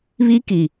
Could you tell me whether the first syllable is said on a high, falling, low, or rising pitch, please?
high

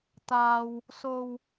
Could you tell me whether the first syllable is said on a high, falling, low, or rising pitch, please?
low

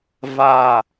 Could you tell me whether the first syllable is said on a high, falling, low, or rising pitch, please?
low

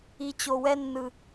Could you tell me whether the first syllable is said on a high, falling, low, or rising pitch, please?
low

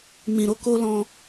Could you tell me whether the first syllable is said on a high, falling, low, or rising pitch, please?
low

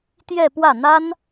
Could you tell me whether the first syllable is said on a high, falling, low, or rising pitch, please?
falling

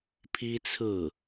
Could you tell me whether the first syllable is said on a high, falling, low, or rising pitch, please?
high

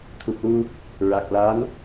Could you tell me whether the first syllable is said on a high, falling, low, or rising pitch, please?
low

